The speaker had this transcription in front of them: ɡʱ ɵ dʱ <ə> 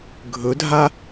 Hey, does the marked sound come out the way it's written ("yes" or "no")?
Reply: no